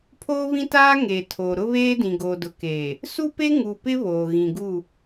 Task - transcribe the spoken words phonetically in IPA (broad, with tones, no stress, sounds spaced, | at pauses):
pʰ oː˦ β ĩ˦ t aː˦ ŋ eː˨ tʰ o˨ ɾ ʊ˦ β eː˦ d ĩ˨ ɡ o˨ d ʊ˨ k eː˨ | s u˦ p e˦ ŋ u˨ p ɪ˦ β oː˨ ɣ ĩ˨ ɡ u˦˨